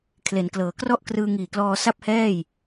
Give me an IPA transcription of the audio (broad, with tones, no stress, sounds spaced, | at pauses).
kʰ l e˩˦ n k l ɤː˩˦ k r ɔ˥˩ ʔ k r ɯː˧ ŋ iː˨˩ k l ɔː˧ s a˥˩ p̚ h ɛː˥˩ j